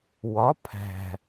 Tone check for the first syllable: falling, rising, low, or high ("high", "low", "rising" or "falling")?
rising